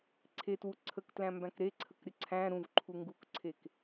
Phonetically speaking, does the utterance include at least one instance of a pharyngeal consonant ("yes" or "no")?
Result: no